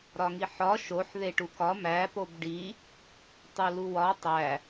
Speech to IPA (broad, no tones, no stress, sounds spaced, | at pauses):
ɾ ɒ ŋ i ħ ɒ ʃ o ħ ð e ʈ u k ɒ m æ p o b ɖ i | tˤ u l u w ɒ tˤ æ